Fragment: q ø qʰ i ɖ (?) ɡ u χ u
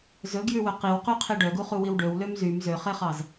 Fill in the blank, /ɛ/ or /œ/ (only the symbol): œ